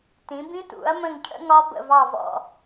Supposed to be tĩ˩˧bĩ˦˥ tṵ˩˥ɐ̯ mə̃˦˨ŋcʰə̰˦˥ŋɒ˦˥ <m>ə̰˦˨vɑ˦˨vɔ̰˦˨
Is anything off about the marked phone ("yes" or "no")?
yes